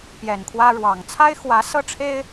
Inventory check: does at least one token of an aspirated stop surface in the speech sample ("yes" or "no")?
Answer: yes